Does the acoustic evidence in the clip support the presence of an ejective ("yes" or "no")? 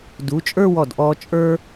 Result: yes